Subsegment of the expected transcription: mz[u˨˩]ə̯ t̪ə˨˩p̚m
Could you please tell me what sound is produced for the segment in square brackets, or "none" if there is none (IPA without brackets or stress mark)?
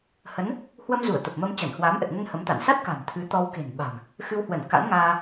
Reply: u˧˩